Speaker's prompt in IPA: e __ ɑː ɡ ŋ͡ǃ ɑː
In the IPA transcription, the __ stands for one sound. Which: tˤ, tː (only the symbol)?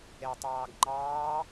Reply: tˤ